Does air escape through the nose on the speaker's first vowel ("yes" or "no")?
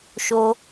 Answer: no